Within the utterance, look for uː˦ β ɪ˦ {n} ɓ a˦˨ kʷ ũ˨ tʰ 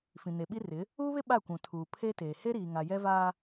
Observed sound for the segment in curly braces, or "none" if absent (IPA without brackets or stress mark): none